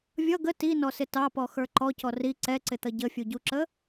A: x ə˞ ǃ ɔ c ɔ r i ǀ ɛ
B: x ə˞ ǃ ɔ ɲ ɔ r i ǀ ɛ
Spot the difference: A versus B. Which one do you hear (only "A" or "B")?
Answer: A